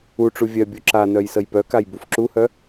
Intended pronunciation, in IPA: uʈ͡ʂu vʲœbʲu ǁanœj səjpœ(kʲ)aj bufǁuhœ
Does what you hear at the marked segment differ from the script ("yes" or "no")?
yes